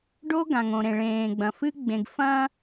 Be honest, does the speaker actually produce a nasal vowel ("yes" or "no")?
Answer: yes